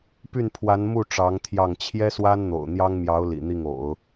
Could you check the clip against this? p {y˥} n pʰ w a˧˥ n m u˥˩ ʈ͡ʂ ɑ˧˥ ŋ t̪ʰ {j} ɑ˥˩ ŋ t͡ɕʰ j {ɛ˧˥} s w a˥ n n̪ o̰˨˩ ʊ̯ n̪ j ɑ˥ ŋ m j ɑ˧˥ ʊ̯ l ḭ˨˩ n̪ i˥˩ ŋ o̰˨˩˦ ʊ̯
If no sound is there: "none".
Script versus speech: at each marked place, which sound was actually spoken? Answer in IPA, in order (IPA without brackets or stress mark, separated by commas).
y˥˩, j, ɛ˥